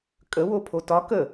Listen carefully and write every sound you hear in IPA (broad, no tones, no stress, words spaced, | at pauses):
kʼə wopʰotɒ kə